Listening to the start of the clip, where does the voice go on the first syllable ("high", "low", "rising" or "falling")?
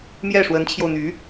falling